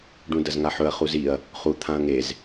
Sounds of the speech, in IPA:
ɖ ũ d ɐ z ŋ a ħ ɵ ɐ̯ χ u z i ɐ̯ | χ u t̪ʰ ã ɐ̯ ŋ e z

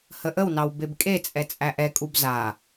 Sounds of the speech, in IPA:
h ə ʔ ə w n ɑ w b e b kʼ e t͡sʼ ɛ t͡sʼ æ ʔ ɛ kʼ u b z a

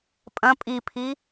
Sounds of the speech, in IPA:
pʼ ɐ̃ pʼ i pʰ i

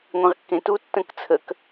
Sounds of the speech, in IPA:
ŋʷ ẽ ʁ kː ẽ t u tː ə̃ k t͡sʰ ə k

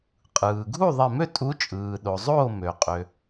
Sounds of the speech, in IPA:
qʼ ɯː˩ ɡʱ u˥˨ ðˤ e˧˩ m ø˥˨ tʼ u˨˦ t͡ʃʼ ɯː˩ ɗ o˩ zˤ oː˥˨ m ø˩ qʼ ø˩

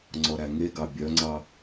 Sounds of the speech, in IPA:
ŋ͡ǀ ɔ ɾ æ ŋ e ɡ ɑ bʲ œ ŋ͡ǀ ɑ

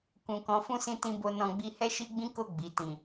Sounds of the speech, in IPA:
k ũ˨ k ɔ̃˨˦ f ũ˦˨ s ĩ˧ t ĩ˧ b o˧ n ɔ̃˧ ɡ͡b i˦ h ɛ˦ ʃ i˦ ɡ͡b ĩ˦ k o˦˨ ɡ͡b i˨ t ĩ˨

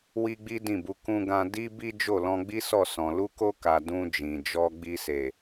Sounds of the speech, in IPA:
w i˦ ɡ͡b i˦ d ĩ˦˨ b u˧ k ũ˧ ɡ ã˧ d i˦ b i˦ d͡ʒ o˦˨ l ɔ̃˧ ɡ͡b i˦ s ɔ˦˨ s ɔ̃˨ l u˧ k o˧ k a˨ d ũ˧ d͡ʒ ĩ˨ d͡ʒ ɔ˧ ɡ͡b i˧ s e˨

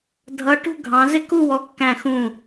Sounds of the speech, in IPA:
dʱ ʌ˧˥ ʈ ṳ˥˧ ɡʱ ɑ̃˧˥ z ɪ˥˧ k u˥˧ w ɔ˧˥ kː æ̃˥˧ x ũ˥˧

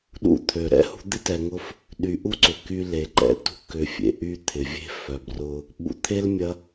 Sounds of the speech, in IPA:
ɗ ṵ˦ t̪ʰ ø˩ ɾ ɛ̰˥ h ṳ˦ d̪ ɪ˥ t ɛ˨ ŋ ʊ˦ f | ɗ y˨ ʔ u˥ ǀ ʏ˩ k y˦ l e˩ ǃ ɛ̰˦ t ṳ˦ k ʏ˨ fʲ ḛ˨ ʔ y˦ t̪ʰ ɪ˩ vʲ e̤˥ f œ˨ b r ʊ˦ | ɓ ṵ˨ t̪ʰ e˥ l mʲ ɐ˦

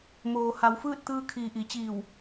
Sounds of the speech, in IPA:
m oː˩ h a˩˧ w f ɯː˥˨ t̚ t̪ ɯː˧ kʰ iː˩ ʔ i˩˧ t͡ɕ iː˧˩ w

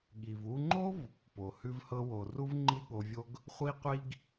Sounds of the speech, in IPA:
ɠ i˩ v u˧ ŋ͡ǃ o˥ v | p o˩ h ʉ˧ v h ɤ˧ w o˩ r u˥ v ŋ͡ǃ i˥ ɠ o˧ vʲ o˥ ɡ | χʷ i˥ qʷ i˥ ɡ

